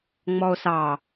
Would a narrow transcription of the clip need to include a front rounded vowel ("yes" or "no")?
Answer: no